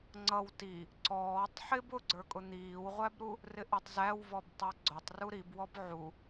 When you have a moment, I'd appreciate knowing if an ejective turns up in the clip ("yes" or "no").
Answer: yes